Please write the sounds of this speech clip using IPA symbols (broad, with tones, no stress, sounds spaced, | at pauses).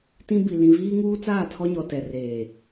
t ĩ˦ b i˨ l ĩ˨ v iː˦ ŋ uː˦ t͡s aː˦˨ tʰ ɔ˦ ɲ ɔ˨ t ɛ˨ r eː˨